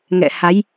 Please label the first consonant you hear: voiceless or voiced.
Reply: voiced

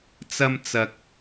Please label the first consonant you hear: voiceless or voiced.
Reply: voiceless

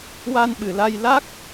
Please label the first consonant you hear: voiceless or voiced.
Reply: voiced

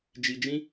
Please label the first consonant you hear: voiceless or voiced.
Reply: voiced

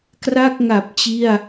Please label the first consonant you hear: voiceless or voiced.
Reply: voiceless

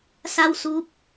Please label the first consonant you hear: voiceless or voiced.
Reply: voiceless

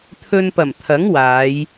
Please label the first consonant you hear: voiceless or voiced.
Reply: voiceless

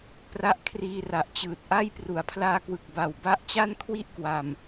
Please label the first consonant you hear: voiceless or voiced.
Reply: voiceless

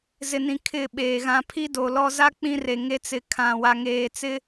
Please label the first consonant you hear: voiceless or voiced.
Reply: voiced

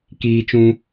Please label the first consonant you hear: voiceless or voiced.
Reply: voiceless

